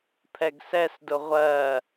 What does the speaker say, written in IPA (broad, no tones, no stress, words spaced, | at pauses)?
pʰɛɡsɛsdʊ ʁʷɜ